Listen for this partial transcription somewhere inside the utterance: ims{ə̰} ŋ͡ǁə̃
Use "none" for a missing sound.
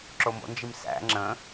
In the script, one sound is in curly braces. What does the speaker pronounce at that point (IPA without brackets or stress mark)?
æ̰